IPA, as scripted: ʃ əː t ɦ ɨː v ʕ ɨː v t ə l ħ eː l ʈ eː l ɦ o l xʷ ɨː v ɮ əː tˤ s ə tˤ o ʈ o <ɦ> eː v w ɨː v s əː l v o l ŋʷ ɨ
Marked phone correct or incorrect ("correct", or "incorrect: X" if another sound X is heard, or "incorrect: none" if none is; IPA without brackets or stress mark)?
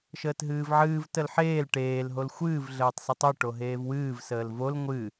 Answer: correct